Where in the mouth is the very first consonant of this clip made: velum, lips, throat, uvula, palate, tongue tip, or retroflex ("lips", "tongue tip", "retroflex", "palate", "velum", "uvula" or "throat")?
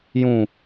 palate